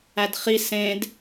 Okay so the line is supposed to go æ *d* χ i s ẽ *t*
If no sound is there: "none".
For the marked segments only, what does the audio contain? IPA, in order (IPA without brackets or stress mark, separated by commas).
d, d